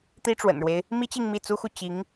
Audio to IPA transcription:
t̪ i˥ ʈ͡ʂ w ə̰˨˩ n ɻ w e˦ ɪ̯ | m i˥ t͡ɕ i˥˧ ŋ m i˥˩ t͡s u˥ x u˥˩ t͡ɕ i˧˥ ŋ

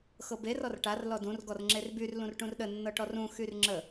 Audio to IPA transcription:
x ɤ b e r ɔ r ʈ a r l ɔ d ũ r ɡ ɔ r ŋ͡ǁ e r b y r l ũ r ʈ ũ r ɗ ə nː ɤ ʈ ɔ r ũ x y r ŋ͡ǁ ə

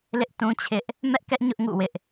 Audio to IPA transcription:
l ɪ˦ ʔ t ũ˦ t͡ɕʰ ɪ˦ ʔ | m ɛ˦ ʔ k ɛ˦ ʔ ɲ ʊ˦ ʔ ŋ ṵ˦˨ w ɪ˦ ʔ

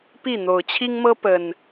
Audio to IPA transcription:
p i˥˨ n̪ o˨˩ ʊ̯ t͡ɕʰ i˦ ŋ m ɤ˦ p ə˨˩ n

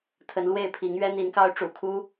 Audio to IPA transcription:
t̪ʰ ə˨˦ n l w e˥˨ ɪ̯ pʰ i˨˦ ŋ ɥ ɛ˦ n̪ i˨˦ n k ɑ˦ ʊ̯ ʈ͡ʂ ṵ˨˩ kʰ u˦

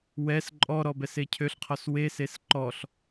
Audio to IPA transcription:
w ɛ s ǃʼ ɔ ɾ ɔ b ɛ s e cʰ ø ɬ qʰ ɔ s w e s e s ǃ ɔ ɬ

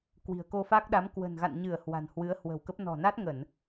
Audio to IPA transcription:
k w i̤˨˩ ə̯ k o˧ f a˦˥ k̚ ɗ a˨˦ m k w ə̤˨˩ n ɣ a̰˧˨ n ɲ ɨ˧˩ ə̯ h w a̤˨˩ n h w ɨ˨˦ ə̯ h w ə̤˨˩ w k ə˦˥ p̚ n ɔ̤˨˩ n a˦˥ t̚ ŋ ə˧˩˨ n

